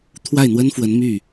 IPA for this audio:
t̪ʰ w a˥˩ ɪ̯ n̪ w ə˥ n f w ə˧˥ n m y˥˩

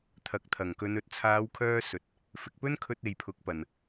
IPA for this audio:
t̪ʰ ɐ˨ k̚ t̪ʰ ɐ˨˩ ŋ k ɵ˨˧ n ɵ˨ t̚ t͡sʰ aː˨˧ w kʰ œː˧ s ɵ˨ t̚ | f ɪ˨ k̚ p ɵ˥ n kʰ ɵ˧ t̚ e˨ j pʰ ʊ˨˥ k̚ p ɐ˨ n

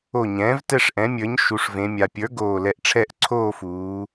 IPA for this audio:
o˧˩ ɲ ɛ̃ː˩˥ v t ɛ˥˨ ʂ ʔ ɛ̃˩˥ mʲ ə˞˩˥ ɲ ʃ u˩˧ ʂ v ẽ˩˧ mʲ a˩ pʲ ə˞˩˥ ɡ oː˧˩ l ɛ˧˩ ʔ ʈ͡ʂʰ ɛ˥˨ ʔ ǀʰ oː˥˨ f uː˩˧

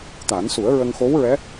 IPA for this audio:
t̪ a˨˩˦ n s u˨˩˦ ə̯ ɹ ə˧ ŋ x o˧˥ w ɹ ɛ˧˥

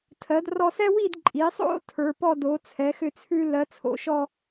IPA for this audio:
tʰ ɜ˩˧ d r ɔ˧ s ɛ˥ w i˥˧ d ǃʼ i˩˧ sˤ o̰˥ tʰ ə˞˩˧ p ɔ˥˧ d o˩˧ t͡sʰ ɛ˩˧ x ʏ˧ t͡sʰ ʉ˧ l ɜ˩˧ t͡sʰ o̰˥˧ ʃ ɔ˥˧

